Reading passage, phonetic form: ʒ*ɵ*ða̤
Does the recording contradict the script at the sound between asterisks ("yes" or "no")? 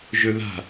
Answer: no